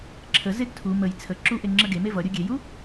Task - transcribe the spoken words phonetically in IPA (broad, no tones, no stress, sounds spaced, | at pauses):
ǁʰ ə z e ɡ tʰ u m ə j t͡sʰ ə ǁ u ʔ e ŋ͡ǁ ə ɡ e m e v ʌ ɾʲ u ɡʲ e j u